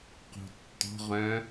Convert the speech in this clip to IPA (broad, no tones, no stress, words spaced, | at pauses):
qo̤tːɔ̤ ʁœ̃